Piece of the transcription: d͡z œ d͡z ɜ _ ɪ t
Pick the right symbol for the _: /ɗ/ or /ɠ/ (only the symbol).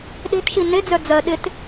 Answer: ɗ